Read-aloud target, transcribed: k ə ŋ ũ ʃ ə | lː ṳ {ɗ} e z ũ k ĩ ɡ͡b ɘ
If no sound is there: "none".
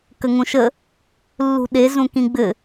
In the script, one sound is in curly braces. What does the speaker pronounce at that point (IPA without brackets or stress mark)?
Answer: ɗ